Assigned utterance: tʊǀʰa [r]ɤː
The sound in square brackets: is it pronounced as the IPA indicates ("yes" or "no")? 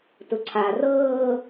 yes